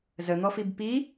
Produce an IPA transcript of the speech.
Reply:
z ə n̪ ɔ f i b p i

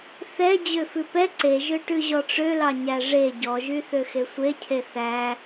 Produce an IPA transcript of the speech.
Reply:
θ ɛ d͡ʑ ø f ʉ p ɛ ǀ e ʒ ø ʈ ʉ ʑ ɔ ʈ͡ʂ ø l ɑ ɲ æ ʐ e ɟ ɔ ʒ y θ ø x e sʷ e cʰ e θ æ

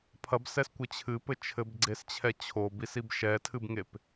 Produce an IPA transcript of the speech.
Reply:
pʰ ɐ b s ɛ s kʷ ɘ t͡ɕʰ ɨ p ɘ t͡ʃʰ ɘ b ɡ͡ǀ e s t͡ɕʰ ɛ t͡ɕʰ o b i s i b ʃ ɛ tʰ ɨ b ŋ e p

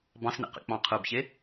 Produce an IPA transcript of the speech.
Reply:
b ɑ̃ s n ḛ q ḛ k͡p ɑ̃ qʰ ɯ b ç e

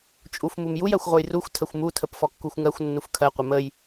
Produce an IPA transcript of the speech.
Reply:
t͡ʃʼ u f m u m j u j ɜ xʷ ʁʷ ə j r u xʷ tʰ ə xʷ m u tʰ ə p f ɔ kː u xʷ ŋ ɜ xʷ nː u f kʰ ɜ qʷ ə m ə j

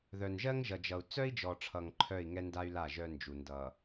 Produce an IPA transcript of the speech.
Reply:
ð œ˨ n ʒ ɜ˦ ŋ ʒ ʌ˨ d͡ʒ ʌ˨ u̯ t͡s œ˦ i̯ d͡ʒ ɔ˨ ʈ͡ʂʰ ʌ˨ ŋ ǃʰ œ˦˨ i̯ ŋ ɛ˦ n d a˦ y̯ l a˦˨ ʒ œ˦ n d͡ʒ u˨ n d ʌ˨

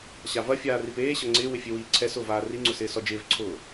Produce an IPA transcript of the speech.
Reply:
ɕ a v ɐ fʲ aː r i p eː ɕ ɐ ŋ͡ǀ ɪː w ɪ fʲ e w iː ǀʰ ɛ s ʊː v aː r i ŋ͡ǀ ʊ s ɪː s ɔ d͡ʒ ɪː v ǀʰ ʊː

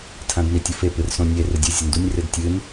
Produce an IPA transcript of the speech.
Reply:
tʰ ã d n i tʲ u f e p ɨ r s õ nʲ e r ɨ dʲ ɨ zʲ ɐ n d u nʲ r ɨ d tʲ ɨ n

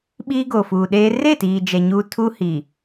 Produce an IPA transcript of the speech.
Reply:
ɓ iː˦ ɡ o˨ f uː˨ ɗ eː˦ r e˦˨ t iː˨ d͡ʒ ɛ˨ ɲ uː˦ tʰ uː˦ h i˨

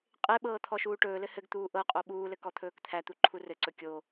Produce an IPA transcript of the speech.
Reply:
qʼ e ɓ ɤː t̪ʰ ɔ ʃ uː ʈ ɵː l ɘ h ɘ ɡ t̪ uː ʔ ɤ qʼ o ɓ uː l ɘ k ɔ t̪ʰ ɵː k t̪ʰ æ t̪ u ǃʰ u r ɘ ǀ ɵ kʲ o

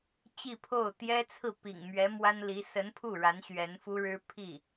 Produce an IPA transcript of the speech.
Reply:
t͡ɕ i˥˧ pʰ o˥˩ ʊ̯ t̪ j ɛ˥ t͡sʰ ɹ̩˥˩ p ḭ˨˩ ŋ m ɥ ɛ˧˥ m w a˥ n l i˧˥ s ə˧˥ n pʰ u˥˩ ɻ a˧˥ n ɕ ɥ ɛ˧˥ n f u˥ ɻ ɻ̩˥ pʰ i˥˩

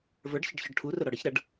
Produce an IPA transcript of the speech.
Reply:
v ə˞ ɖ ç ə ɖ ç ɔ ɖ ʈʰ u r ʊ ɾ ɔ ɽ ə ç ɾ ʌ ɖ

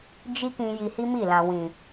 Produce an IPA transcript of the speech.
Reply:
d͡ʒ i˦ k ĩ˧ j i˧ h i˦ m i˦˨ l ã˨ w ĩ˨

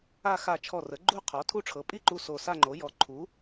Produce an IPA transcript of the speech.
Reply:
a˥˧ x a˧˩ t͡ʃʰ ɔ˧˩ r ə˩˥ ɡ͡ǃ u˥˧ qʰ ɔ˩˥ tʰ u˥˧ ʈ͡ʂʰ ɤ˩˥ pʼ i˥˧ ǃ u˧˩ s o˧˩ s a˥˧ ŋ͡ǃ o˩˥ j ɔ˩˥ ǃʰ u˩˥

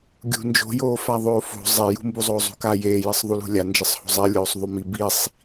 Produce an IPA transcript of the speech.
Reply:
ɡʲ ṳ n d͡ʒ o̤ j oː f a ðˤ oː f o̤ zˤ e j ṳ m b u zˤ oː zˤ ṳ k a j eː j ɘ sˤ ðˤ u l ṳ lʲ a n d͡ʒ ɘ sˤ h o̤ zˤ e lʲ oː sˤ ðˤ u m i b i sˤ

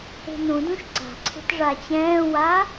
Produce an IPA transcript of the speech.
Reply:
e̤ n ũ d ũ ʃ ǀ a̤ ǀʰ e̤ t ʐ a t͡ɕ ɛ̃ː w a

